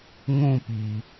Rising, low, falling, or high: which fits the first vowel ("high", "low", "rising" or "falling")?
falling